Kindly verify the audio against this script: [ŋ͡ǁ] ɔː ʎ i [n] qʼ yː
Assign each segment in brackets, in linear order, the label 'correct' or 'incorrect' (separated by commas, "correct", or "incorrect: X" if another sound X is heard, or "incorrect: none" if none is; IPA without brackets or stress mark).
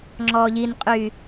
correct, correct